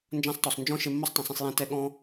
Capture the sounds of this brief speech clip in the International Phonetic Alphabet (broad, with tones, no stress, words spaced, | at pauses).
nd͡ʒã˦sˤtɔ˨sˤ nd͡ʒɔ̃˦ ʃe˧mːo˦sˤ tˤẽ˨sˤẽ˧sˤ jɛ̃˧tɛ˧ ɠɔ̃ː˦